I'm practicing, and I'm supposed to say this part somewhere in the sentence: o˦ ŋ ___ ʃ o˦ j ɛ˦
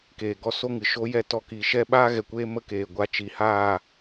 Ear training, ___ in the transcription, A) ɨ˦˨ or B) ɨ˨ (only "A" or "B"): B